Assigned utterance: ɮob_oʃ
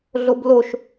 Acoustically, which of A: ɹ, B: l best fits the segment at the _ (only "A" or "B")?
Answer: B